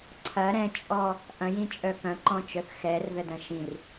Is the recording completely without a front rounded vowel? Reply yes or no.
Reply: no